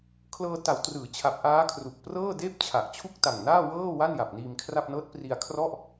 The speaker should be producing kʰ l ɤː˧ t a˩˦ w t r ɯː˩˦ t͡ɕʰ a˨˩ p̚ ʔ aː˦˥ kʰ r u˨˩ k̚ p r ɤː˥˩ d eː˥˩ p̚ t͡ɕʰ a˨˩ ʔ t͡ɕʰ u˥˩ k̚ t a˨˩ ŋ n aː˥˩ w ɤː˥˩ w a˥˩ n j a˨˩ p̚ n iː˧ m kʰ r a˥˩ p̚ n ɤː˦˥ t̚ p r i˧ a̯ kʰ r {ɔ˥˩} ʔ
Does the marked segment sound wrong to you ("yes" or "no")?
no